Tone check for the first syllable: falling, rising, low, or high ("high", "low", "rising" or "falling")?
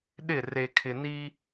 falling